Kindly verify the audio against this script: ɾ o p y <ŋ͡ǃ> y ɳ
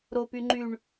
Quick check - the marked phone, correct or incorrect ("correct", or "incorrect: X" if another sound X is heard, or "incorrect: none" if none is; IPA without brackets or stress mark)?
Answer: correct